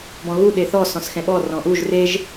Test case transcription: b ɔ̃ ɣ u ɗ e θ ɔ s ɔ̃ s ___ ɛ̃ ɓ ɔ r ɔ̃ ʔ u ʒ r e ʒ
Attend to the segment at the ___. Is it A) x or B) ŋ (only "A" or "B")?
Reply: A